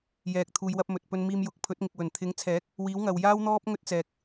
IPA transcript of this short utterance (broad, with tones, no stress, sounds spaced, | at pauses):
j ɛː˨ k̚ t̪ʰ uː˨ j w ɐ˧ p̚ m ɵ˨ t̚ p ɵ˧ n m iː˧ m j ʊ˨˥ k̚ pʰ ɵ˨˥ t̚ ŋ ɪ˨ k̚ w ɵ˨˩ n t̪ʰ ɪ˨˥ ŋ t͡sʰ ɛː˨˥ k̚ | w iː˨˥ w ŋ ɐ˨ w j aː˥ w n̪ ɔː˥ p̚ ŋ ɵ˥ t̚ t͡s ɛː˨ k̚